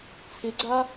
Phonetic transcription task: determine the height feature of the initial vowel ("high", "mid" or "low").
high